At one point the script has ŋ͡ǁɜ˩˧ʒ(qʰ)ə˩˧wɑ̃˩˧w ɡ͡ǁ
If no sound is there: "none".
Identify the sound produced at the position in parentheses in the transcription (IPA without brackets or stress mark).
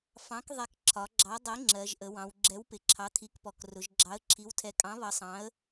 ʔ